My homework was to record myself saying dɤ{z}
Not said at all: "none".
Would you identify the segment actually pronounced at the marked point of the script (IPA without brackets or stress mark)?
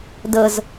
z